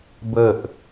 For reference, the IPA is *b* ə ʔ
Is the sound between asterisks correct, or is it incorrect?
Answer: correct